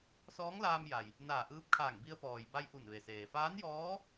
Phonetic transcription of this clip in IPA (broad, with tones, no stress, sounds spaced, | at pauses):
s ɔː˧˥ ŋ l aː˧ m j a˩ j | n aː˧˩ ʔ ɯː˧ p̚ kʰ aː˧˩ ŋ b i˧ ə̯ p ɔː˩ j b a˧ j ʔ u˧˩ n ʋ e˩ s eː˩ f aː˧˥ n j ɔː˧˥